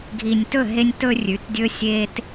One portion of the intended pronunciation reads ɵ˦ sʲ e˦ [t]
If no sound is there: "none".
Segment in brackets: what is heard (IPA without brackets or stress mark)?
t